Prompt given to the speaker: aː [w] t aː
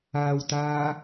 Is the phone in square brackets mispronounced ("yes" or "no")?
no